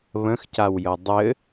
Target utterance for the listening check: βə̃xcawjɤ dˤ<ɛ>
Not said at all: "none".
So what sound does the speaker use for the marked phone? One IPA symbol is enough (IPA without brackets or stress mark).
ɘ